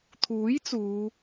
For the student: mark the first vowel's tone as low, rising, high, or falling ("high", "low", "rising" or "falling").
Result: rising